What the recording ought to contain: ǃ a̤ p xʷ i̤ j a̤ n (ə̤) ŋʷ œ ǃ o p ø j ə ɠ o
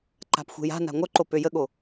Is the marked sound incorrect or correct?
incorrect